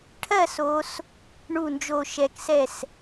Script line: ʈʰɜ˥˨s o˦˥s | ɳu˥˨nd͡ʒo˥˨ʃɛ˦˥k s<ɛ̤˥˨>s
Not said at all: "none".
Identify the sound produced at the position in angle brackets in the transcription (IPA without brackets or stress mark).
ɛ˥˨